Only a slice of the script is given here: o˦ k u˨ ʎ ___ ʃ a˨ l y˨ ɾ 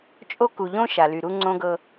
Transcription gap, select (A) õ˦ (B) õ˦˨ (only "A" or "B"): A